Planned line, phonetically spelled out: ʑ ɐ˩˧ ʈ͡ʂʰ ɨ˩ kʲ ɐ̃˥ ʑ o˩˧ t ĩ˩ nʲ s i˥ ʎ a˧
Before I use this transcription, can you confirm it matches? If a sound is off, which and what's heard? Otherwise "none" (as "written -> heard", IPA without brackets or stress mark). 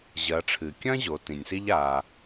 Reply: none